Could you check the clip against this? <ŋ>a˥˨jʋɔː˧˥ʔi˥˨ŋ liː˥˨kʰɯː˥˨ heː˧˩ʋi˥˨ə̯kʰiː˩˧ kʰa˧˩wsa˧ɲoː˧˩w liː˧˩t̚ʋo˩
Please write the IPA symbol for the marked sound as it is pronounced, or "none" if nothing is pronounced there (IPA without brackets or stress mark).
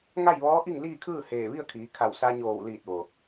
ŋ